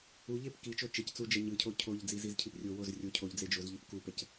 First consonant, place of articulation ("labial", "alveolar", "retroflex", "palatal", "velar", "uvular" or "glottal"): palatal